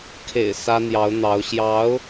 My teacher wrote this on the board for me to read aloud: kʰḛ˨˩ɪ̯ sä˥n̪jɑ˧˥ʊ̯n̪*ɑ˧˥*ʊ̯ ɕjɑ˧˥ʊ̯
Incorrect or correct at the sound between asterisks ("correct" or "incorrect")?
correct